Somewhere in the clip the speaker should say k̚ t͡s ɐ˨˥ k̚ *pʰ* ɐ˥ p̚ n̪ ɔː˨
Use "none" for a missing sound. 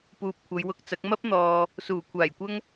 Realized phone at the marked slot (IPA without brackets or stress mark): m